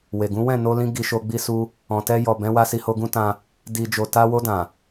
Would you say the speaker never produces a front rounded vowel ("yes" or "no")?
yes